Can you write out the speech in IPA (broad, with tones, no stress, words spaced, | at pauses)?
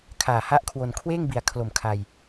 kʰaː˨˩ha˦˥ʔkʰwo˧n kʰweː˥˩ŋbi˨˩a̯kʰlo˨˩m kʰa˧j